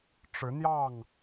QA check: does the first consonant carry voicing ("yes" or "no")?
no